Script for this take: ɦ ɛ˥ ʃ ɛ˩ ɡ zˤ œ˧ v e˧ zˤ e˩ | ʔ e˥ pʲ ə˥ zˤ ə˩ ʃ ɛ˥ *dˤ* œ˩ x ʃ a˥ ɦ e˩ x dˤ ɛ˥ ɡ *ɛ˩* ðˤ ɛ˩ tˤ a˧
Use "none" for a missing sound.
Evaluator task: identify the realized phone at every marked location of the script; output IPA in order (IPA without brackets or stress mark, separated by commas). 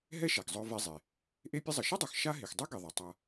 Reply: dˤ, e˩